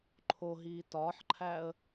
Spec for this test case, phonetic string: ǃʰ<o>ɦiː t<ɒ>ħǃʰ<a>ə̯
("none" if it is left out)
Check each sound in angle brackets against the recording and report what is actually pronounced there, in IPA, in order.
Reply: o, ɒː, æ

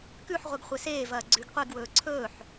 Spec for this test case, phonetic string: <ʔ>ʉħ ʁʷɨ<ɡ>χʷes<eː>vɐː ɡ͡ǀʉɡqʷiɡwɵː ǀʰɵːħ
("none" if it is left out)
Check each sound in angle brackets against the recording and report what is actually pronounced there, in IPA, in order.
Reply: k, ɡ, eː

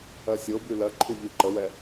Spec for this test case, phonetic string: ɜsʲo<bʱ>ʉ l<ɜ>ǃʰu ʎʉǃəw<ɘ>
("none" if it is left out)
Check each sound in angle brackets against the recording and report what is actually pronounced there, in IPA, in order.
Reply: b, ɜ, ɛ

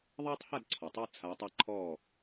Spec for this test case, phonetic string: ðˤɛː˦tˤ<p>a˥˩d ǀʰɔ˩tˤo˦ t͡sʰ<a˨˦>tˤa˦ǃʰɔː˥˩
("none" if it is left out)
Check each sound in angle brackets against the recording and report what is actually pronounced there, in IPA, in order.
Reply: h, a˨˦

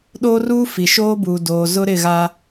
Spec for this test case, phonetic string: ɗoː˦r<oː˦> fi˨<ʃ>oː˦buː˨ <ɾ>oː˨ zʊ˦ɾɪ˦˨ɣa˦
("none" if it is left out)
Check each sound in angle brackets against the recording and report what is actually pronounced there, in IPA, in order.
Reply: uː˦, ʃ, d

